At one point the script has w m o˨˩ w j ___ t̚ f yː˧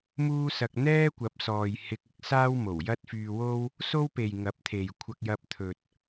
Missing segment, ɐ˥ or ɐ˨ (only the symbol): ɐ˥